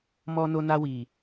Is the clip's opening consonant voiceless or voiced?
voiced